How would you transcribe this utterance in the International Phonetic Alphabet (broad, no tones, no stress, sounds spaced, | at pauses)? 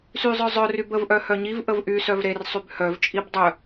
s y zˤ œ zˤ œ r y b ə v ʔ œ h œ ɲ i v ʔ ə v ʔ y s œ v ɾ e r sˤ y b h œ v t͡ʃʼ i b dˤ œ